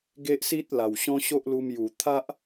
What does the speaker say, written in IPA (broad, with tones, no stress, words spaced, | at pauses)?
ɡe˦ʔsi˦t̚la˨˩w ɕɔ̃˦ɕo˦ʔlu˧mju˨˩ t̪ʰa˦ʔ